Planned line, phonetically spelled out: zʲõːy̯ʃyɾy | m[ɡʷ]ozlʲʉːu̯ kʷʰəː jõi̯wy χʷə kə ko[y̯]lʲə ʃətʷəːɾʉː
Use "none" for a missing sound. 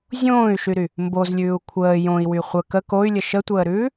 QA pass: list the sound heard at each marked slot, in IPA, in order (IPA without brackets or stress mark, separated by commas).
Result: b, y̯